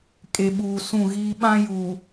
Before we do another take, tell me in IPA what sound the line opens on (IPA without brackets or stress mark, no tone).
kʼ